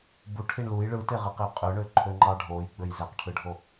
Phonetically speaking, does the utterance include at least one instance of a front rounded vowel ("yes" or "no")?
yes